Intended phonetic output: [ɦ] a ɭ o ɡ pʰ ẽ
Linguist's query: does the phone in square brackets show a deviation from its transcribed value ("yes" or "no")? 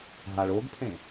no